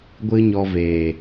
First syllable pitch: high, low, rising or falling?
high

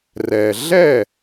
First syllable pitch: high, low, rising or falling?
low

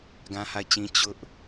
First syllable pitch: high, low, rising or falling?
high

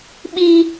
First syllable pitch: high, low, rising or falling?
low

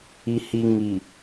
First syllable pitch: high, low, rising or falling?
low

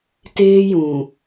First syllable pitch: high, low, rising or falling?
high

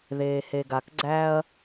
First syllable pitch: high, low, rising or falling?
low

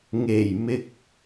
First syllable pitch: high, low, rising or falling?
low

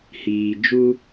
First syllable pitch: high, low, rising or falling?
low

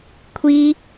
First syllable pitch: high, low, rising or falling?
high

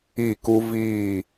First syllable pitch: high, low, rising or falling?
falling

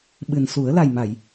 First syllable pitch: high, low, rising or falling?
low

